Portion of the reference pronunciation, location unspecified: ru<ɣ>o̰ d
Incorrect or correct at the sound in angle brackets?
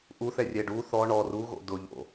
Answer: correct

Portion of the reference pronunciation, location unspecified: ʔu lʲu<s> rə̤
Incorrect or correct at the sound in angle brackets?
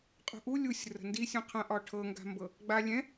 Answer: incorrect: sʲ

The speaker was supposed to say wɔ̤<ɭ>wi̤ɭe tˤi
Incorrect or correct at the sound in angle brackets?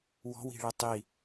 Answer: incorrect: none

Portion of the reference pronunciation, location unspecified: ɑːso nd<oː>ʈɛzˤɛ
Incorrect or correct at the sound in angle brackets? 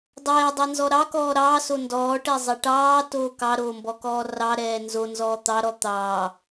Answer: incorrect: ɔː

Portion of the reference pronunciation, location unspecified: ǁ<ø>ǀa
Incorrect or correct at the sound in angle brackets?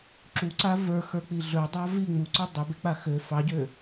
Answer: incorrect: u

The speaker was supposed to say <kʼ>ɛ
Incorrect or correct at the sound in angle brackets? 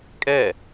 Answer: correct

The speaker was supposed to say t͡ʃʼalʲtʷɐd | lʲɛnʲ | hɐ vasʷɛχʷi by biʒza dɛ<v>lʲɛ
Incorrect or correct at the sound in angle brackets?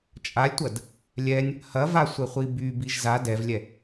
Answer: correct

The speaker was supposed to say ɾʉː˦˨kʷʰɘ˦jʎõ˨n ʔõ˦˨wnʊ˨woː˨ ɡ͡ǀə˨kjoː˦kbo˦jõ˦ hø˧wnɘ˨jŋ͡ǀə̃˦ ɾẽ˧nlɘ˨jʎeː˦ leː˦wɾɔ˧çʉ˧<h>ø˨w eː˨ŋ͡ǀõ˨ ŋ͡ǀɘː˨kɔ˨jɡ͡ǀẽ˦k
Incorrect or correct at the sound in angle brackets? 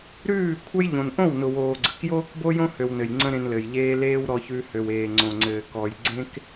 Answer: correct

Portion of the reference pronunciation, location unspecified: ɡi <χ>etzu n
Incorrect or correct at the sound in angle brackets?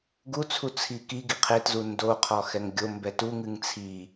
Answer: incorrect: qʰ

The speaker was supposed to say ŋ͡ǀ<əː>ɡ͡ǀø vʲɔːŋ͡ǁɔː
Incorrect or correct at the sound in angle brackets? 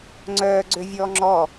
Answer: incorrect: œː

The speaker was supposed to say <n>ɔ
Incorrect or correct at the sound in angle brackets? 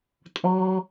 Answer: incorrect: tʼ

